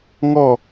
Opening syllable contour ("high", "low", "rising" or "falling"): falling